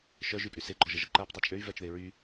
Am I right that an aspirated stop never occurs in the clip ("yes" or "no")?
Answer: yes